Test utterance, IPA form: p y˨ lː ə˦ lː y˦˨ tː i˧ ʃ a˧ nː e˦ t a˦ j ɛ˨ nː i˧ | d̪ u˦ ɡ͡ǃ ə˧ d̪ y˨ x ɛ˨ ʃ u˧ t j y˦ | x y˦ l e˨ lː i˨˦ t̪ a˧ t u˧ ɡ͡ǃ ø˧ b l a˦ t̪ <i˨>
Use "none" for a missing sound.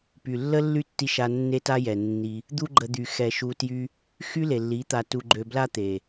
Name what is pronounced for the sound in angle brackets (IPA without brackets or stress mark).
e˨